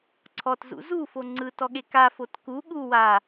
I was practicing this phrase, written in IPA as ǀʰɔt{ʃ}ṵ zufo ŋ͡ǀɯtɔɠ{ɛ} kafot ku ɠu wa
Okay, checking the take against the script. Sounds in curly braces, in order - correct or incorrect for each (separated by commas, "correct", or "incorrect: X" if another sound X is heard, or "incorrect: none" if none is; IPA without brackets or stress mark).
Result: incorrect: z, incorrect: e